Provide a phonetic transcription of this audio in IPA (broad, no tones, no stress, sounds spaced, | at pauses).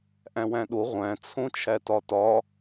ʔ æ̃ w æ̃ ɗ o ʁʷ æ̃ t͡sʰ õ t͡ʃʰ æ t ɒ t ɒ